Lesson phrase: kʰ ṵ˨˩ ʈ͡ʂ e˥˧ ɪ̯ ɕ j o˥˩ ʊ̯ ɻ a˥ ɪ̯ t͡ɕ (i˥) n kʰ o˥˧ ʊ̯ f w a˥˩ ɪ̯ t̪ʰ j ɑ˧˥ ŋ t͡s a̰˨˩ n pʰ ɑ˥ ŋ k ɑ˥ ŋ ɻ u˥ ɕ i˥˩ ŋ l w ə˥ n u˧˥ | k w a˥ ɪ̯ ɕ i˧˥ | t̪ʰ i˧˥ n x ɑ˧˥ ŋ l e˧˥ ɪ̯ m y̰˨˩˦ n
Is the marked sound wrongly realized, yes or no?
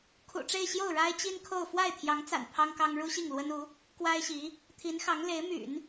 no